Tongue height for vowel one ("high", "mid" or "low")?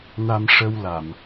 low